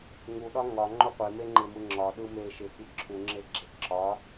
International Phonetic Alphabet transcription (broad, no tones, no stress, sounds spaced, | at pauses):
ŋ u ɗ ɒ ŋ ɒ ŋ͡ǃ o qʷ e m e ŋ͡ǃ ɪ m ɯ ŋ͡ǁ ɒ ɗ ɯ m e ʃ ɪ f i ǁʰ u ŋ͡ǁ e ɡ͡ǁ e ǁ ɒ